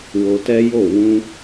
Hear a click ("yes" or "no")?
no